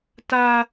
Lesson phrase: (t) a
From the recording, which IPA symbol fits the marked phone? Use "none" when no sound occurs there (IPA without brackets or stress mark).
t